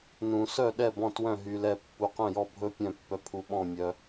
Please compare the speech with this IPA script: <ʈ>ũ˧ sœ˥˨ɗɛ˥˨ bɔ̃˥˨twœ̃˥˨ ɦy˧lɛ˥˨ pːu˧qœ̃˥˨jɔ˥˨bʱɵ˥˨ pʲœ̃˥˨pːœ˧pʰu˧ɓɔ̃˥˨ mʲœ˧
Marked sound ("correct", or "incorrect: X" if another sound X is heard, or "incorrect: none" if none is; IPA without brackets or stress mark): incorrect: n